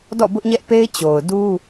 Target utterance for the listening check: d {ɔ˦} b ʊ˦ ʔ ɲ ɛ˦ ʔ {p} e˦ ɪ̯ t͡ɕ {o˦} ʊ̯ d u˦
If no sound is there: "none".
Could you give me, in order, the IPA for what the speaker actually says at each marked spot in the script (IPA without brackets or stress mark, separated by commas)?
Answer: ɔ̰˦˨, p, o˨